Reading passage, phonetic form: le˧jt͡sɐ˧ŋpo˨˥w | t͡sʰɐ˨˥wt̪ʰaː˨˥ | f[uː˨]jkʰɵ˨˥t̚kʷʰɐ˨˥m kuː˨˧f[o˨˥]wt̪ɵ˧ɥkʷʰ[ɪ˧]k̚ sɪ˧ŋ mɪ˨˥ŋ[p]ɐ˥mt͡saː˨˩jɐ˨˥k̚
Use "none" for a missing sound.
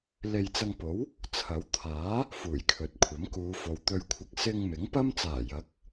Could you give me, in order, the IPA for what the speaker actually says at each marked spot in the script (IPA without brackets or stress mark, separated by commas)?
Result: uː˨˩, o˨, ɪ˧, p